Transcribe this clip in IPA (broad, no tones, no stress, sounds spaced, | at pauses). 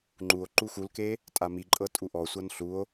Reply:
ŋ͡ǃ u o̯ ǃ u x u l k e | tʼ a m i ǃʼ ɤ tʼ u ʔ ɔ sʷ ɤ n ɬ u o̯